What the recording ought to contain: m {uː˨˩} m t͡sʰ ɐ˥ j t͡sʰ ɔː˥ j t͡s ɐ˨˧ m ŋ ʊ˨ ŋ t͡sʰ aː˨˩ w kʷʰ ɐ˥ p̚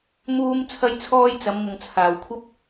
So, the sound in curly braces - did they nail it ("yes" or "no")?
no